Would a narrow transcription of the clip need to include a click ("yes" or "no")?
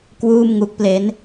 no